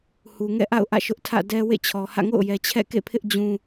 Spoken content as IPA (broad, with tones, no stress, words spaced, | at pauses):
hu˨ŋɛ̰˦˨ʔa̰˦˨ʊ̯ ʔä̰˦˨ʃʊ˦ʔtʰä̰˦˨ dɛ˦wḛ˦˨t͡ɕʰɔ˨hä̰˦˨ ŋo̰˦˨ʊ̯jɛ˨t͡ɕʰɛ̰˦˨ kḛ˦˨pʰɪ˦ʔ d͡ʑũ˦